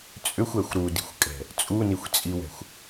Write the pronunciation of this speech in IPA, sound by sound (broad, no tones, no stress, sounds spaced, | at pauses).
t͡sʼ ʏ xʷ ɛ xʷ ɾ u d i̤ xʷ kʼ ɛ̤ | t͡sʼ u n i xʷ t͡sʼ i w ɛ̤ xʷ